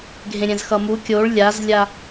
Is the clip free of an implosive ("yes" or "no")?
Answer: yes